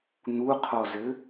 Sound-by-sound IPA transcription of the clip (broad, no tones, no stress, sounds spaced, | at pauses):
n̪ u qʰ ɔ z ɘ